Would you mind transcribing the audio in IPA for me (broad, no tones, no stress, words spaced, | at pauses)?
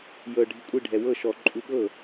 jɤ ɖʱikʷʼi ɖʱɛwɤ ʃɔ ǃʼuɠɤ